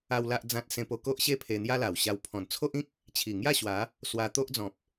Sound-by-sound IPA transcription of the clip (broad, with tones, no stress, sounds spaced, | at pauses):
a˦ w l a˦ ʔ d͡z ã˦ t̚ s ẽ˧ p o˧ k o˦ ʔ ɕ e˥˧ pʰ e˧ n̪ j a˦ l a˨˩ w ɕ a˧ w pʰ ɔ̃˨˩ n t͡sʰ o˦ ʔ ĩ˦ k̚ | t͡ɕʰ i˨˩ ŋ j a˥˧ ɕ w a˨˦ | s w a˧ t̪ o˦ ʔ d͡z ɔ̃˨ p̚